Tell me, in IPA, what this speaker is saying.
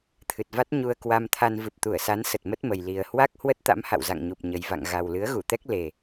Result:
t̪ʰ ɨ˨˩ t̚ v a˦˥ t̚ ɲ u˧ ə̯ k w a˧ m t̪ʰ a˧ n v ɨ˨˩ p̚ t̪ u˧˩ ə̯ s a˨˦ n s ə˨˩ t̚ m ə˦˥ t̚ m ə˨˩ j l i˨˩ ə̯ h w a˦˥ k̚ h w ə˦˥ t̚ t̪ a̰˧˥ m h a̰˧˨ w z a̰˧˨ ŋ ɲ u˨˩ p̚ ɲ ə˨˩ j v a̰˧˨ ŋ ɣ a˨˩ w l ɨ˨˦ ə̯ ɣ u˧˩ t̪ ɛ˦˥ k̚ l e˨˩

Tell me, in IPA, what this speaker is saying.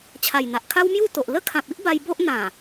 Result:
t͡ɕʰ a˨˩ j n̪ a˨ ʔ kʰ a˦ w m j u˥˧ t̪ o˨ ʔ l ə˦ kʰ ã˨ p̚ i˦ ʔ b a˧ j b o˦ ʔ n̪ ã˨˩

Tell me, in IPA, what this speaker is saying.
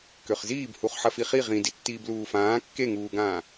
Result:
k ø χ z iː b h u χ ħ ɐ f i χ i ʁ ĩ d i tː iː b l uː f ãː kː e ŋ uː ɡ ãː

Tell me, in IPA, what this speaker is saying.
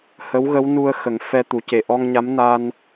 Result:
h ə˧˥ w ɣ ə˧˥ w n u˧ ə̯ x ə˨˩˦ ŋ f ɛ˧ t̪ u˨˩˦ c e˨˩ ʔ ɔ˧ ŋ ɲ a˧˥ m n a˧ n

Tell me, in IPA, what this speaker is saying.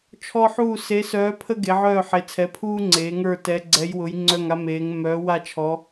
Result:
t͡ʃʰ ɔ˦ ħ uː˦˨ s e˨˦ s œː˨˦ pʰ ə˦ ɡ e˨˦ ʕ œː˦˨ ħ e˨˦ t͡sʰ ɛ˨˦ pʰ uː˦ ŋ͡ǀ eː˨˦ ŋ ə˞˦˨ t ɛ˨˦ ɡ͡ǀ ɛ˨˦ j w ʊ˨˦ j ŋ͡ǀ œ˦˨ ŋ a˦ m eː˨˦ ŋ m œː˨˦ w a˦˨ t͡ʃʰ ɔ˨˦

